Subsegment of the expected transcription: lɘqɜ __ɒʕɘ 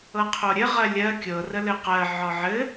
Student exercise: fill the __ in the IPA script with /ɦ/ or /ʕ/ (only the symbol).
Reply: ʕ